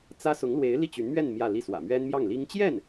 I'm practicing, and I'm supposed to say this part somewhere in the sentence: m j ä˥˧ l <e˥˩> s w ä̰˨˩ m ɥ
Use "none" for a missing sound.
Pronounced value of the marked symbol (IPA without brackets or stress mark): i˥˩